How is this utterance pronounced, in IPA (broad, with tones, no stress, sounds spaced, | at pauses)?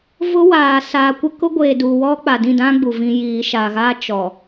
v ʊ˦ w aː˨ s aː˨ kʷ ɪ˦ k ʊ˦ ɡʷ eː˨ d uː˨ w ɔ˦ k͡p a˨ d ĩ˦˨ d ã˦ ɡ͡b u˨ v ĩ˦ j iː˨ ʃ aː˨ ɣ aː˦ t͡ʃ ɔ˨